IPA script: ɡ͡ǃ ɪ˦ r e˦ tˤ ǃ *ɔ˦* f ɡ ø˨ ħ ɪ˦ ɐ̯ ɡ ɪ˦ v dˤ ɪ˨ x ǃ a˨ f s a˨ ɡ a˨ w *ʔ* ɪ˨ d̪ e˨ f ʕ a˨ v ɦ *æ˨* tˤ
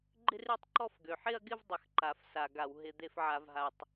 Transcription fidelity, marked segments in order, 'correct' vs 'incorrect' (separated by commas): correct, incorrect, incorrect